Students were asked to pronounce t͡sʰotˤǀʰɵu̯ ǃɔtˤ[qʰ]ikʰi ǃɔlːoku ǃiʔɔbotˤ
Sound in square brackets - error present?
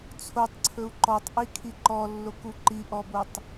yes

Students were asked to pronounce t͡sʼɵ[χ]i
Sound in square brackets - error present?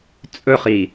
no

